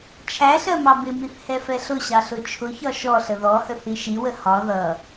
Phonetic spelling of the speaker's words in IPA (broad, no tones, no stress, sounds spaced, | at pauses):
t͡ʃʰ æ ɬ ɜ m ɑ b ɪ m i θ h ɛ f ɛ ɬ ʊ ɕ ɑ ɬ ʊ t͡ʃʰ ʊ ç ɒ ʃ ɔ ɬ ə ð ɔ h ə θ i ʃ i w ə h ɒ ð ʌ